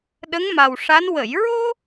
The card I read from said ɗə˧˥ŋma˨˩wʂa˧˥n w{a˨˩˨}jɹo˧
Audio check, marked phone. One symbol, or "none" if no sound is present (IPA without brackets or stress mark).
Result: ə˨˩˨